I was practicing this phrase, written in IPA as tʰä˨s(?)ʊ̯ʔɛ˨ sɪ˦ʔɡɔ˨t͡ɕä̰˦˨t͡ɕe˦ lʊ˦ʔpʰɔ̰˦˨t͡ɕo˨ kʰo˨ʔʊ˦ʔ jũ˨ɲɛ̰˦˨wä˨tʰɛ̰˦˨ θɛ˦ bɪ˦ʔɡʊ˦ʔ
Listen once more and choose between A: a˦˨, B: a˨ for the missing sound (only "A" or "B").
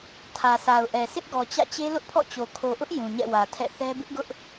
B